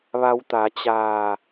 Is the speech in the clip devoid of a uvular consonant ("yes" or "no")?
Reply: yes